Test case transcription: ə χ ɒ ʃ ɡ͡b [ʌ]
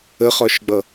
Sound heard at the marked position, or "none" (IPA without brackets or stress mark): ʌ